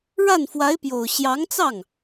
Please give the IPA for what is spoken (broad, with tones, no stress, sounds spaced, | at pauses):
ɻ a˥˩ n f w a˧˥ ɪ̯ p j o˨˩ ʊ̯ ɕ j ɑ˧˥ ŋ t͡s ɑ˥˩ ŋ